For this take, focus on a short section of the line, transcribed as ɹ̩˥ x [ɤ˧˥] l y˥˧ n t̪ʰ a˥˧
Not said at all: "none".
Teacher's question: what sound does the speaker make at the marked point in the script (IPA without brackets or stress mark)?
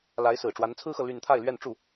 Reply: ɤ˨